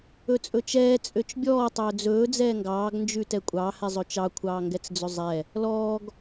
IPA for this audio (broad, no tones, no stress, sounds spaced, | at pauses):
ɵ t͡sʼ ɵ t͡ʃ ɛː t͡sʼ ø t͡ʃ bʲ ɔː tˤ ɵː d͡z ɵː d͡z ɛː ŋ ɡ ɑː ɡ n d͡ʒ ʉ t ɛ kʷʼ ɑ h ɛ zˤ ɵ t͡ʃ ɑ kʷʰ ɑː ŋ ɡ ɛ t͡s d͡z ɵ zˤ ɛ | l ɔː ɡ